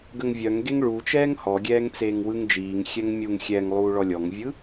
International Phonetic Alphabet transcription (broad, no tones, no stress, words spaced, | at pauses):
ɡəŋvʲœŋɡeŋ ɭu t͡ʃɛːŋhɔɡʲɛːŋ t͡seːŋwɯŋd͡ʒiːŋxʲɛŋ mʲuŋ xʲɛŋ lˠuːɭɔlʲɔŋvʲɯ